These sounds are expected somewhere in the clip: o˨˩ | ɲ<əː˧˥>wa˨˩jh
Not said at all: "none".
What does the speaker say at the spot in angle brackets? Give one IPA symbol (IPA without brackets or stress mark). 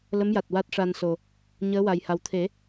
əː˧˥